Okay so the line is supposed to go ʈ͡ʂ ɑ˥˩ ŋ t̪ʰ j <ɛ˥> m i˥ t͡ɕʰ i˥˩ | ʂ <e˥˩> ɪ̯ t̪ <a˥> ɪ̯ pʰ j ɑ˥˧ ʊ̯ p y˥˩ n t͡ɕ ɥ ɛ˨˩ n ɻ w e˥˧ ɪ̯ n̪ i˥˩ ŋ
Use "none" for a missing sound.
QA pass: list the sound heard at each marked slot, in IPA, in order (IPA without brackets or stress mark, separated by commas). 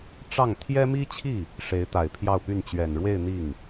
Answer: ɛ˥, e˧˥, a˨˩